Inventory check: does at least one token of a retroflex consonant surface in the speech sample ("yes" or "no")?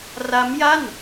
no